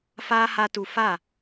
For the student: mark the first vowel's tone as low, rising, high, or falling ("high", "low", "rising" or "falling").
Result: high